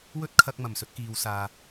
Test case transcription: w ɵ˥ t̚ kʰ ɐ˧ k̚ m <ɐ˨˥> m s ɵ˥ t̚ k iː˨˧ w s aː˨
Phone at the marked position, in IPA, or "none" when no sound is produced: ɐ˨˩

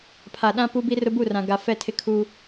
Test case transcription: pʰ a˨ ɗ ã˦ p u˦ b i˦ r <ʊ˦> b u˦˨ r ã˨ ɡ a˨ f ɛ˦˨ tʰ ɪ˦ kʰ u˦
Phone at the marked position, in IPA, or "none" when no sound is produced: ʊ˦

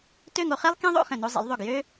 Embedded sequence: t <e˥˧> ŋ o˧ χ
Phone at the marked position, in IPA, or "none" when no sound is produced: ø˥˧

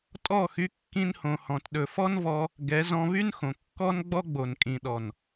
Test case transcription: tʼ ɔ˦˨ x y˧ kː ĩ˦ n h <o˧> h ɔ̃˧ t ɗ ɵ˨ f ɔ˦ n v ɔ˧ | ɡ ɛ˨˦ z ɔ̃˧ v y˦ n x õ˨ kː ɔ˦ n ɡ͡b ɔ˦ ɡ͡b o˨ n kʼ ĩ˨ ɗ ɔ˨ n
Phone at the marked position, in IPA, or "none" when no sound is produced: õ˧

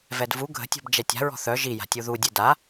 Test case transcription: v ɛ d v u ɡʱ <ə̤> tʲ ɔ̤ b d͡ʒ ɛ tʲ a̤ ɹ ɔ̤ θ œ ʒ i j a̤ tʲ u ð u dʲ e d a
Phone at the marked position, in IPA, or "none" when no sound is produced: ə̤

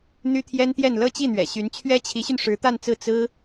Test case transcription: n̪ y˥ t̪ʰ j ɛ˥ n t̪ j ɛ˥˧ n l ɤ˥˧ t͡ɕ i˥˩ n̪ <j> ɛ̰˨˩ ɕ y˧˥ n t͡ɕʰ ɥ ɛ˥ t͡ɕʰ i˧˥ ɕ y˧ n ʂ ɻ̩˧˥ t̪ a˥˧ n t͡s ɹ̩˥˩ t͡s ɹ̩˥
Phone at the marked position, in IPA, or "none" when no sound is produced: ɥ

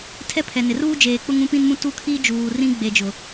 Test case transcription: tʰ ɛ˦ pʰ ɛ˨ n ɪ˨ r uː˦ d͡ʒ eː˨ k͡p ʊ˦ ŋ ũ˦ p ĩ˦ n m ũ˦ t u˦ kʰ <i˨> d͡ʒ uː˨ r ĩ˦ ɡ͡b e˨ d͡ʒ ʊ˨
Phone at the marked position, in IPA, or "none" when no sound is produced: i˦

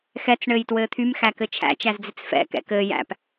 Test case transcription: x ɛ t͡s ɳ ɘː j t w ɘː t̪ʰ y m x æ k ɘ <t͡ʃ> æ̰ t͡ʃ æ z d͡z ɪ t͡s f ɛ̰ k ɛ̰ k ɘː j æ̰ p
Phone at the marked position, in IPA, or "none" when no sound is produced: t͡ʃʰ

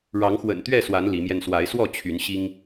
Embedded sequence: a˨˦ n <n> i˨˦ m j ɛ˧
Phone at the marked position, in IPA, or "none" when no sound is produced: l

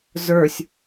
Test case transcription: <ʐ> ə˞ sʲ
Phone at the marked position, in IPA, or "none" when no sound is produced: z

